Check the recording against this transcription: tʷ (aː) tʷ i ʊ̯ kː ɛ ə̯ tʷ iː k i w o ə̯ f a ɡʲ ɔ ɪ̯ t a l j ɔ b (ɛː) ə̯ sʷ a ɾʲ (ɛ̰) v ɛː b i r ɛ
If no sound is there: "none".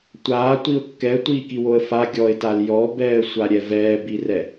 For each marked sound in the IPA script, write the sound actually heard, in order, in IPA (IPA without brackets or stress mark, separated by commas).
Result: aː, ɛː, ɛ